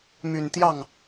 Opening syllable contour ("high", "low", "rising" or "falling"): low